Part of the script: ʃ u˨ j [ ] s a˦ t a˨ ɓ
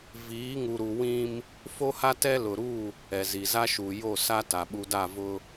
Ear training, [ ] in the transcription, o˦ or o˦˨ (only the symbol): o˦˨